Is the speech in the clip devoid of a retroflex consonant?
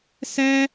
yes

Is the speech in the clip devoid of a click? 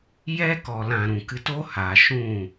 yes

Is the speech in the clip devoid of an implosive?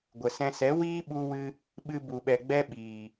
no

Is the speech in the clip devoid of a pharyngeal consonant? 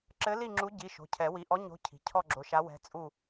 yes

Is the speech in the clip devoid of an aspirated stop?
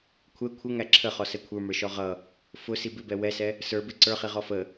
no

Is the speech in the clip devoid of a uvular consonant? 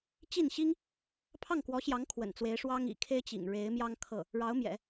yes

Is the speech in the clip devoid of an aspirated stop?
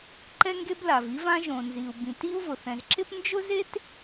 yes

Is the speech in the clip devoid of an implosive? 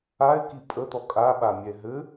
no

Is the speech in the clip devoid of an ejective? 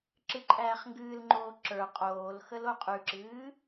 no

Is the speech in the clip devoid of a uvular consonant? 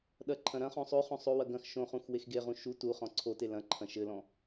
no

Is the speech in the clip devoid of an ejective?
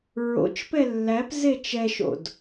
yes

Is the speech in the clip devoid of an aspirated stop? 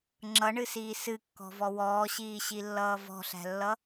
yes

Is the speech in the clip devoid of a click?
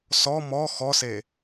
yes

